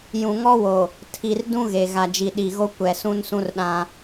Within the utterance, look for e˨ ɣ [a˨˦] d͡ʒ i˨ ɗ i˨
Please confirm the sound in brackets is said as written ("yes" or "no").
no